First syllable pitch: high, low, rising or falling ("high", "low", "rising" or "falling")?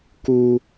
high